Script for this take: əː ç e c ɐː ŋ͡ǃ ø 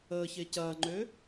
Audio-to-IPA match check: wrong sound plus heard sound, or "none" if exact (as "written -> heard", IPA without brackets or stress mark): none